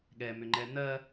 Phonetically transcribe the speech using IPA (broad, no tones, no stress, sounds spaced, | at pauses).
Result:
ɠ ɛ m ʏ ŋ͡ǃ ɛ n̪ ɜ